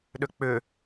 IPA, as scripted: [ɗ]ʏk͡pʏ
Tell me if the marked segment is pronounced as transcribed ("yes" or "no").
yes